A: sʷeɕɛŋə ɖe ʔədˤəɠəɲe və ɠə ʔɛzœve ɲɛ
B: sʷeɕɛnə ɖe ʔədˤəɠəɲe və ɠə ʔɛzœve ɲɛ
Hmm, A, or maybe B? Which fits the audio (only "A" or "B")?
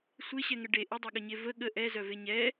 A